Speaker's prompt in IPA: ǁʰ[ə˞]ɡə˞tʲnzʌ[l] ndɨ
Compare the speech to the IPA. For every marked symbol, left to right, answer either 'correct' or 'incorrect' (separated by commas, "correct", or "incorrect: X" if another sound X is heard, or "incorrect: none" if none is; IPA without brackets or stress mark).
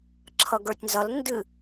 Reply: incorrect: ʌ, correct